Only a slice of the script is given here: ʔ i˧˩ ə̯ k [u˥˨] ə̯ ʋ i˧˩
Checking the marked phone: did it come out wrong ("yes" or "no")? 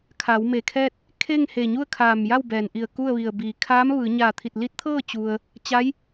no